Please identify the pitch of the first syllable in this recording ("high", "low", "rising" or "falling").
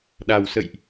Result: low